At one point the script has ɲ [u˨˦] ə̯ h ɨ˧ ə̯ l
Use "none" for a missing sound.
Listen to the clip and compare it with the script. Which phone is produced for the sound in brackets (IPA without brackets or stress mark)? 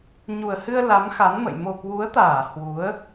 u˨˩